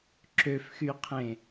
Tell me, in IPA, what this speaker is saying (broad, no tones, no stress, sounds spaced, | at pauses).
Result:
ǁ ø f x y qʰ ẽ